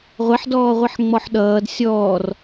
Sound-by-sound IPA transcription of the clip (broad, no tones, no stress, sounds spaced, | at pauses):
ʁʷ ɛ ħ d ɔː ʁʷ i ħ ŋ͡m ɔ ħ ɗ ʌː d sʲ ɔː r